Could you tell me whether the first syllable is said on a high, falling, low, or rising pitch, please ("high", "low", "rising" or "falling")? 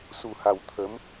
low